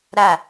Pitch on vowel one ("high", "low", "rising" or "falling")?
falling